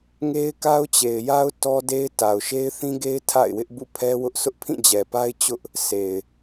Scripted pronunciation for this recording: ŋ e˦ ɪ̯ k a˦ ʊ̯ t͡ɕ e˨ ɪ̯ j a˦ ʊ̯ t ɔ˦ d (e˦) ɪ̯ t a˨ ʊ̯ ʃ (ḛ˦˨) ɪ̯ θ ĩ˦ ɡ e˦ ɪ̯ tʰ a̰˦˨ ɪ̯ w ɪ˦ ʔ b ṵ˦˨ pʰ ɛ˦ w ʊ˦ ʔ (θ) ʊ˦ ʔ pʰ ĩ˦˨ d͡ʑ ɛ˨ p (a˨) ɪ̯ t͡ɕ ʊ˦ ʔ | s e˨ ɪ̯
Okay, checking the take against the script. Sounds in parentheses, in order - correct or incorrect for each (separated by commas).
correct, incorrect, incorrect, incorrect